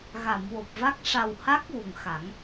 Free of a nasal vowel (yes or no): yes